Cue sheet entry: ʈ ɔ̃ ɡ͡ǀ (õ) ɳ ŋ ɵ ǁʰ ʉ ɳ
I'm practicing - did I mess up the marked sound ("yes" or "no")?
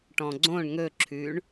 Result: no